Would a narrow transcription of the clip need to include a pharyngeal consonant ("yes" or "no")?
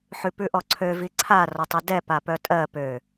yes